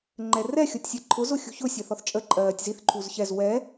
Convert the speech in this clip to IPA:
ŋ͡ǃ ɛ r ɛ xʲ ɔ tʲ sʲ ɜ ǃʰ ʊ z ʊ xʲ ṳ ç ʊ sʲ ɜ θ ɔ θ t͡ʃʼ ə ǃʼ ɜː tʲ z i θ ǃʰ u z ç ɛ z w ɛ

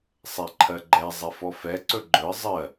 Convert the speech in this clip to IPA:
sˤ ɛ ǃʰ ɜ ɡ͡ǃ ɛ zˤ ɛ f ɔ f ɛ ǀ ɵ ɡ͡ǃ ɵ ə̯ zˤ ɜ

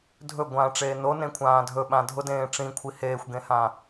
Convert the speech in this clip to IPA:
dʱ ɵ ɡʷ ãː ʈ͡ʂ eː n o n ẽ kʷʰ ãː dʱ ɵ ɓ ã dʱ ʊ d ẽː ʈ͡ʂ ĩ kʷʰ i h eː xʷ ɡ ẽ h ã

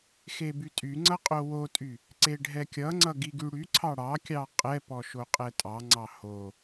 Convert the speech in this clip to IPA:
x e b y tʼ y ŋ͡ǀ ʌ qʼ o w o tʼ y | ǀ e ɖʱ ɛ kʲ ʌ ŋ͡ǀ ʌ ɡ i ɡ y ɽ y ǀʰ ɑ ɽ ɑ kʲ ɑ qʼ ɛ p ɔ ʃ o qʼ ɛ tʼ ɑ ŋ͡ǀ ɑ h o

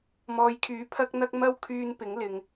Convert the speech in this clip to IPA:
m ɔː˨ j kʰ yː˨˥ pʰ ɐ˥ k̚ n̪ ɐ˥ k̚ m ɐ˥ w kʰ yː˧ n p ɪ˨˥ ŋ l ɪ˨ ŋ

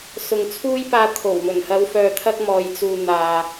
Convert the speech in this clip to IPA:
s ʊ˨ ŋ t͡sʰ uː˥ j p aː˧ t̪ʰ o˨˩ w m ɵ˨˩ n h ɐ˨˧ w f œː˨ t̪ʰ ɐ˧ k̚ m ɔː˨ j t͡s uː˨ n̪ aː˨

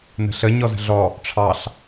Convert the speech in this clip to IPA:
n ə̤ ɬ ə ɲ ɔ z ə̤ ɮ ɔ | ʈ͡ʂʰ ɑ ɬ

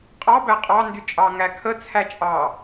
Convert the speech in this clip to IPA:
qʼ ɑ b æ qʼ ɑ n d y t͡ʃʼ ɑ ŋ æ kʰ ə t͡sʰ æ t͡ʃʼ ɑ

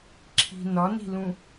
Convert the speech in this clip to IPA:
ǁʰ i̤ n ɒ n i̤ l ũ

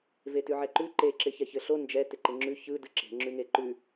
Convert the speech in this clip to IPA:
v e t ʉ ʕ ɛ ǃ ʉ ǃ e ǁ ɪ ç ɛ ç ɘ ɬ o n d͡ʒ ɛ t ɪ ǃ ɪ ŋ͡ǁ ʉ ç ɯ d ɯ ǁ e̤ ŋ͡ǁ ʉ ŋ e ǃ ʉ

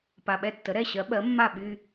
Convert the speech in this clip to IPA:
p a˨˩ ɓ ɛ˥˩ tː ə˩˥ ɾ ɛ˥˩ ɕ ɜ˩˥ ɓ ɜ˩˥ mː a˥˩ ɓ y˧

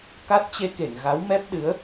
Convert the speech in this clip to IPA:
k a˦˥ t̚ t͡ɕ e˧ k e˧˩ ŋ ɣ a˨˦ w m ɛ˦˥ p̚ ɗ ɨ˨˦ ə̯

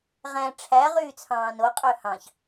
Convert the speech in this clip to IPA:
ʁ æ̃ ʈ͡ʂʰ æ ʁ yː t͡sʰ ɑ̃ː n o qʼ ø h ɑ̃ ç

